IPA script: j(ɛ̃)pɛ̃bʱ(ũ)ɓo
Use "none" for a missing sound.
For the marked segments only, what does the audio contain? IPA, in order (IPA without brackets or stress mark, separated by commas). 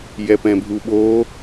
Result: ɛ, u